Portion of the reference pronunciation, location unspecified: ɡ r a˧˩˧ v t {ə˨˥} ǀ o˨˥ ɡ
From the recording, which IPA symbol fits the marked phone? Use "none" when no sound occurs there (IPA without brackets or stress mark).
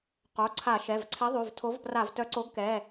œ˨˥